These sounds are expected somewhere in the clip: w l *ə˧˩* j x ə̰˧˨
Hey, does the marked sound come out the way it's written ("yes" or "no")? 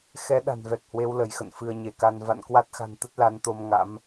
yes